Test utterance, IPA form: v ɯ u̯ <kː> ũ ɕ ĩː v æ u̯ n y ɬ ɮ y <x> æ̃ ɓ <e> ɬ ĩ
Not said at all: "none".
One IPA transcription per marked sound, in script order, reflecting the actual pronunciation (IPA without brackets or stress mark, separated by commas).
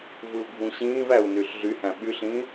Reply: ɡʱ, h, y